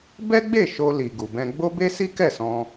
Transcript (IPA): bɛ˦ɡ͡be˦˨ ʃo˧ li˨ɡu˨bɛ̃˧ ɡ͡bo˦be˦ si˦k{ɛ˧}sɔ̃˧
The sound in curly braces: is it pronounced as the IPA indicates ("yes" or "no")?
no